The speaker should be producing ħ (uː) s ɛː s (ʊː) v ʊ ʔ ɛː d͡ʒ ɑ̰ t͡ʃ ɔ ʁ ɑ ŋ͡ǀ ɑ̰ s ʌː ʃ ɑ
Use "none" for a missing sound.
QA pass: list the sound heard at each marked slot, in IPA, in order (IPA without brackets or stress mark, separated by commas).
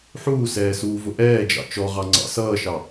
uː, uː